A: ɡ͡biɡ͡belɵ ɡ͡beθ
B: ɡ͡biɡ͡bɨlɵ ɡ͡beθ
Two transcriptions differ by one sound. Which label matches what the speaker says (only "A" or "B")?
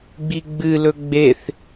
B